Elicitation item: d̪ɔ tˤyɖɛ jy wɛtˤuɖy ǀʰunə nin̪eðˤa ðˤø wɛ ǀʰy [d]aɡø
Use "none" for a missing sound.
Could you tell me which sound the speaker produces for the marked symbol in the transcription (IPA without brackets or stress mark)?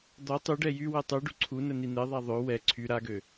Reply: ɾ